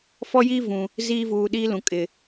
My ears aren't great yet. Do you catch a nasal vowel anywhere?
yes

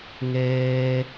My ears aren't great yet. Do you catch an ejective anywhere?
no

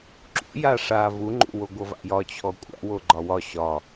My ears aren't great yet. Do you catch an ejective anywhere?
yes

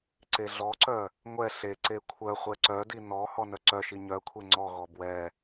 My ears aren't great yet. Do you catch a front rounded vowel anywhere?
yes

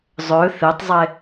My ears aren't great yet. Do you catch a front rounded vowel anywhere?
yes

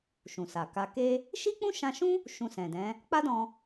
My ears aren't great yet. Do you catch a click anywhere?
no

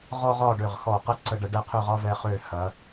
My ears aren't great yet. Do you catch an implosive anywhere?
no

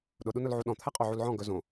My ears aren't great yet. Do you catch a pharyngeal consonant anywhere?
yes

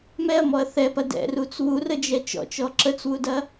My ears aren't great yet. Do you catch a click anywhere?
yes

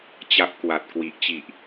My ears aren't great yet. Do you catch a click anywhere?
no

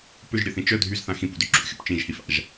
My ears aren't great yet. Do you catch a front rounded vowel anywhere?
yes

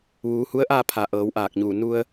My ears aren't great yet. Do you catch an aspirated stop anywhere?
yes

